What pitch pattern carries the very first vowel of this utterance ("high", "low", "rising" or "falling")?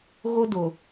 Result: high